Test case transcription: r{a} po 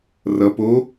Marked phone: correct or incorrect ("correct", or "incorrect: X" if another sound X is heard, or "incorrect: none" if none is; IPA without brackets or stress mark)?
incorrect: ʌ